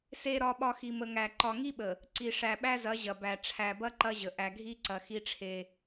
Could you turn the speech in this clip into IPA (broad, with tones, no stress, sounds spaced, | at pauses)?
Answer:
s e˨ ɾ ɒ˨ ɓ ɒ˨ x i˨ m ə˨ ŋ æ˨ ǃ ɒ˨ ŋ i˦ ɓ ə˨ | ǀ i˨ ʂ æ˨ ɓ æ˦ z ɐ˨˦ ʑ ɐ˨ b æ˨ ʈ͡ʂʰ æ˨ b ɐ˦ ǃ ɐ˦ ʑ ə˨ ʔ æ˨ ɡʱ i˦ ǀ ɐ˨ x i˦ ʈ͡ʂʰ e˦